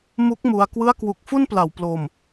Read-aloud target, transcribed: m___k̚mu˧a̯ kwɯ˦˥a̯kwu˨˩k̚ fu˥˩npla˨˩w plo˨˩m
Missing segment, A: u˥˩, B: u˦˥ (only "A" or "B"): B